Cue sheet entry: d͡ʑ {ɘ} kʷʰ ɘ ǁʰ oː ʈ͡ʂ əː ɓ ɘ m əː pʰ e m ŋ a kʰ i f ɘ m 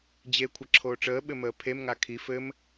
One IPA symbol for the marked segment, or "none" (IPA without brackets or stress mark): e